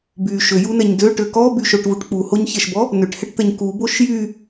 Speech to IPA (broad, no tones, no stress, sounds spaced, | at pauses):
b y ʃ ø j u n ɛ ɲ d ø ʈ ø k ɔ b y ʃ o ʈ v u ʈ k͡p u h o ɲ ç ɛ ʃ b ɔ | n ø ʈ h ɛ ʈ t̪ ɛ ɲ k u b o ʃ j y